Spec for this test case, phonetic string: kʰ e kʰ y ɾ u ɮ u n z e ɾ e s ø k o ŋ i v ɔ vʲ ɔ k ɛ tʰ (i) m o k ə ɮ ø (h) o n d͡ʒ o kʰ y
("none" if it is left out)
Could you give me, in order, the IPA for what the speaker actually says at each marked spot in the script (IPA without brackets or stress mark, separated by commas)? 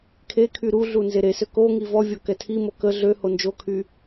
i, h